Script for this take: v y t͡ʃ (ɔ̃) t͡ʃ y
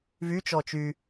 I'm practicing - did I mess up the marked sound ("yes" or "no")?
yes